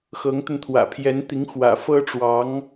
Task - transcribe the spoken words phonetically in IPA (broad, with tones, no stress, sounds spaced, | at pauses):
x ɤ˧˥ ŋ t̪ ə˧ n t̪ʰ w ä̰˨˩ pʰ j ɛ˧˥ n t̪ i˧˥ ŋ x w ä̰˨˩ f ɤ˥ ʈ͡ʂ w ɑ˧˥ ŋ